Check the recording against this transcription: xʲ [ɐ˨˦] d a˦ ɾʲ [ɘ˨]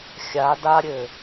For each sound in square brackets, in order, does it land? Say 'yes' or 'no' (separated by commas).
no, yes